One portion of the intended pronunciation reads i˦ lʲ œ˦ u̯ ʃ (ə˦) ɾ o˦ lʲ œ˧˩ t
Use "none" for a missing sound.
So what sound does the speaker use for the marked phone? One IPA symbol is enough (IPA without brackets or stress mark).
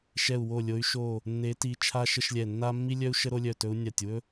ə˦